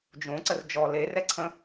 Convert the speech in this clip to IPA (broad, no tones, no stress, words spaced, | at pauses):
d͡ʒõ ǀərd͡ʒɔ le rɛǀʰə̃